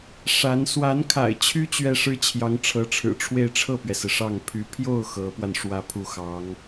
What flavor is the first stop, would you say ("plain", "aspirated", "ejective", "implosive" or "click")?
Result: aspirated